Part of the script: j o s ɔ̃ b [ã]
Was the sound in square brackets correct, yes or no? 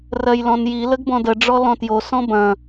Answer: no